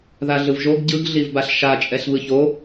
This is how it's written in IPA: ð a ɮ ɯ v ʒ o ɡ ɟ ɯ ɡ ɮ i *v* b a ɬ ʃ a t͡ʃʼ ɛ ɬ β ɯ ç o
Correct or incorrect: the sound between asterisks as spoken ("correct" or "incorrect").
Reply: correct